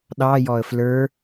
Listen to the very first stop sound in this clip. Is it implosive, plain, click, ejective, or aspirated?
implosive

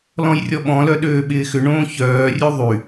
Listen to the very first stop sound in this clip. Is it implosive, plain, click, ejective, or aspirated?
implosive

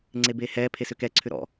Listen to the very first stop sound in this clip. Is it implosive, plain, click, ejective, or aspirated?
click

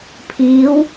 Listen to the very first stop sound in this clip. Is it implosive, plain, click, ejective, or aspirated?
aspirated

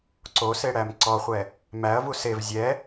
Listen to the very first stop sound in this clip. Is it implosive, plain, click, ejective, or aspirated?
click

